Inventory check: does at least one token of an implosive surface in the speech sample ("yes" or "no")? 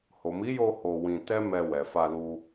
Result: no